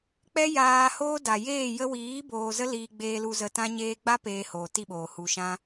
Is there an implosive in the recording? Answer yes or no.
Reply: yes